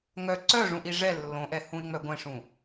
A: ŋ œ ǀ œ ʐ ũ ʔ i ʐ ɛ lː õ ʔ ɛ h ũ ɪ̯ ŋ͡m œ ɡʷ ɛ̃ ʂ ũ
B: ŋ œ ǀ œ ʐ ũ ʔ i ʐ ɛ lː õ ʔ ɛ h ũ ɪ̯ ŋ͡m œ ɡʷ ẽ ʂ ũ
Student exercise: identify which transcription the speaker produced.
A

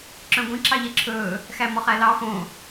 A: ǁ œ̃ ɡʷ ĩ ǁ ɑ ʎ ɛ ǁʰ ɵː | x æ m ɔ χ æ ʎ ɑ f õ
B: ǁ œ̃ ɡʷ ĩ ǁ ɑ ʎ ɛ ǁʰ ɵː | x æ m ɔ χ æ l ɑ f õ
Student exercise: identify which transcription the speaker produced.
B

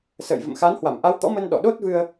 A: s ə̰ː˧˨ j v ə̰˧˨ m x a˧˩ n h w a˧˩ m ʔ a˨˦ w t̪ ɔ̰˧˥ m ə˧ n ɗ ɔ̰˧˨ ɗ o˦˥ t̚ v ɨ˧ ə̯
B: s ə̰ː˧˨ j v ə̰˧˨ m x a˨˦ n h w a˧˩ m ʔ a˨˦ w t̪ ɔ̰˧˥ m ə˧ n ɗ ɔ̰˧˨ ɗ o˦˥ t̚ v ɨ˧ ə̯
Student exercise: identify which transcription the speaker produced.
B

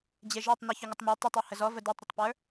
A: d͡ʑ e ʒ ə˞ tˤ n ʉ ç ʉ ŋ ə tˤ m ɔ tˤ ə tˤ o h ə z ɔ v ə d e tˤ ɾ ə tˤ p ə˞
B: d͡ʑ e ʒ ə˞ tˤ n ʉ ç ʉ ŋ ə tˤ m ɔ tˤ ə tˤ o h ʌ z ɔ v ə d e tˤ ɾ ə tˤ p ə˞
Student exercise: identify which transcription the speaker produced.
A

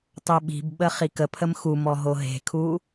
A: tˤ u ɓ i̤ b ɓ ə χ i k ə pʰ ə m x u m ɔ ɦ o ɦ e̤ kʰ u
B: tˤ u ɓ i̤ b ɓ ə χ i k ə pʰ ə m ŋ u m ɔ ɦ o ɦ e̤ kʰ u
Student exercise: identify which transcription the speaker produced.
A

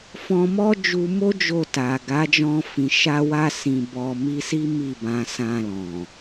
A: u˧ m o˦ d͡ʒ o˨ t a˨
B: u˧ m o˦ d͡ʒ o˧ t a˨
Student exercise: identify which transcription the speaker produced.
B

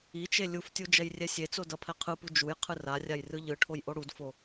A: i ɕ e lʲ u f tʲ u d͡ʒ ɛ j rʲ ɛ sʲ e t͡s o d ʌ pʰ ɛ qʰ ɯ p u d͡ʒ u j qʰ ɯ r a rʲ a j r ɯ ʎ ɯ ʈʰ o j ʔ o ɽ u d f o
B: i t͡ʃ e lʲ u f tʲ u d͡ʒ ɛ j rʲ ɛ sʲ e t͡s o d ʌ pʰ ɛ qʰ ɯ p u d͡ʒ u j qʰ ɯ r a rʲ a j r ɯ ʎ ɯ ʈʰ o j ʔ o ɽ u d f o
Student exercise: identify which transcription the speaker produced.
B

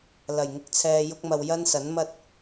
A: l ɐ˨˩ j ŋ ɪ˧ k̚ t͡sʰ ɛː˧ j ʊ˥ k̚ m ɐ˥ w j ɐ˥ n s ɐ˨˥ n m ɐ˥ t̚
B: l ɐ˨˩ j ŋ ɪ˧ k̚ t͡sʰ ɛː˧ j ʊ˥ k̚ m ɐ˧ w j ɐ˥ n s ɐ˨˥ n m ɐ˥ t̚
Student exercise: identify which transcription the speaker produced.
B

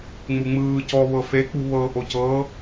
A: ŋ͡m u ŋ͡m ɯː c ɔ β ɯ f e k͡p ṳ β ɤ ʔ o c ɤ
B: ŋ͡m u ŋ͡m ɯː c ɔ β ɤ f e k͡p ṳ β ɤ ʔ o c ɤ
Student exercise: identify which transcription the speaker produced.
B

